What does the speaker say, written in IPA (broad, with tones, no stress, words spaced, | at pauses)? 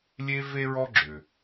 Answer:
lʲe˥ ve˥ɹɔ˥ɡ͡ǁʏ˩